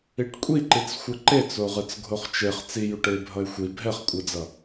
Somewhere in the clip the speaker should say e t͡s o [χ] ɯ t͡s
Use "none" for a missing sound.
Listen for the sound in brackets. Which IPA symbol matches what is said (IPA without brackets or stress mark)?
ʁ